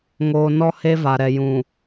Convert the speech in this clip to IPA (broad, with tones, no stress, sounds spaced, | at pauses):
ŋ oː˨ n ɔ˦ h e˦ v a˨ ɾ ɛ˨ j ũ˨